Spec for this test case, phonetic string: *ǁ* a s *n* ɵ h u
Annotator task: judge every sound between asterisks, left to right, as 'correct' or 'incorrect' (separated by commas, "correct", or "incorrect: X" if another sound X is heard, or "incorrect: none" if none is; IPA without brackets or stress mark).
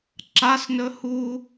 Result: correct, correct